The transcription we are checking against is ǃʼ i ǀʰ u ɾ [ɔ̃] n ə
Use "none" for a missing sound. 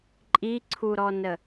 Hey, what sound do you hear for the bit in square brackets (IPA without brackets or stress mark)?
ɔ